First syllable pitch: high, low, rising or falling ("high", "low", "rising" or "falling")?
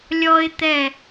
high